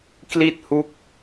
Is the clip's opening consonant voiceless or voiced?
voiceless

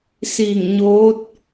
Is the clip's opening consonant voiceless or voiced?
voiceless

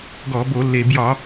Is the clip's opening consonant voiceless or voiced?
voiced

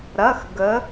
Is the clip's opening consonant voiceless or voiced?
voiced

